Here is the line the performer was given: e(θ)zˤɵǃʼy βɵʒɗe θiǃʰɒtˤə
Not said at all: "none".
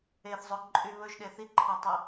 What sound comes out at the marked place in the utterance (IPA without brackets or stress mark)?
θ